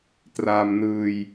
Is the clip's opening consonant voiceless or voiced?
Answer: voiceless